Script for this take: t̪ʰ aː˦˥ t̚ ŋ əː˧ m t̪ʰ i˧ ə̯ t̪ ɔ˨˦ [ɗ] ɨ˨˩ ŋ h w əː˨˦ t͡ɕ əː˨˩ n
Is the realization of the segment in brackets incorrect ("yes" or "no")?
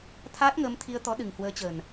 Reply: no